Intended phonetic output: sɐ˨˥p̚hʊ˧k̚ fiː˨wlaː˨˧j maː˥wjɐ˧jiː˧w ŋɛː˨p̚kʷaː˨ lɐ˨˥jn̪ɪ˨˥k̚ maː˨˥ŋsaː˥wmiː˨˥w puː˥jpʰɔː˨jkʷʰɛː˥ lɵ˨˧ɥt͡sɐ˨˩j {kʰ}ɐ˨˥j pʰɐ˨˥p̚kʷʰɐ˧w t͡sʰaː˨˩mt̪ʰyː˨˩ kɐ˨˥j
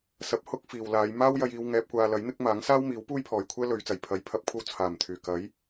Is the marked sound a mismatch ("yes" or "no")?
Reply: yes